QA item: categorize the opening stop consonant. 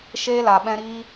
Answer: implosive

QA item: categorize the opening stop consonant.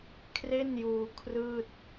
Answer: aspirated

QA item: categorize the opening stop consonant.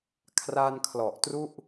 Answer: aspirated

